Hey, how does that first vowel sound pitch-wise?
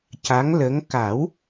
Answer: rising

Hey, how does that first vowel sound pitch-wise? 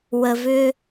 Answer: low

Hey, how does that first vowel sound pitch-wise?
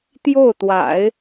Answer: falling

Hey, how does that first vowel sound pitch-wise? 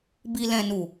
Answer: low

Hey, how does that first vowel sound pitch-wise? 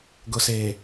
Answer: low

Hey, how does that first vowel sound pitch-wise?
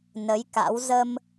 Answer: rising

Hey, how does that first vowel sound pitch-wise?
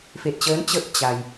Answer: low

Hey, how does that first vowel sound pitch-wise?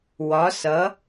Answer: rising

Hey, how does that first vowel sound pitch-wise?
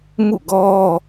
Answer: falling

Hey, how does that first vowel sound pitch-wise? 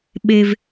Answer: high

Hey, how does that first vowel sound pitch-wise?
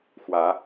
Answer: rising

